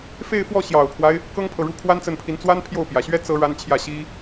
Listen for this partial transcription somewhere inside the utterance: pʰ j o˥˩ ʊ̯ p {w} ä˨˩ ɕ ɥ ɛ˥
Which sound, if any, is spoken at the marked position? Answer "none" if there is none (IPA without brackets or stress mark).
j